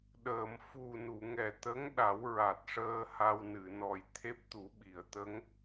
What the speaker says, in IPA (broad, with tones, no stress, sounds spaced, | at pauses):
ɗ əː˨˩˨ m f u˨˩ n u˨˩˨ ŋ ɛ˨˩ t̪ ə˧˥ ŋ ɗ a˨˩˦ w ɹ a˨˩ t̚ ʂ əː˧ h a˧ w n ɨ˨˩˨ n ɔ˨˩ j t̪ʰ e˦˥ p̚ t̪ u˨˩˦ ɓ i˨˩˨ ə̯ t̪ ə˧˥ ŋ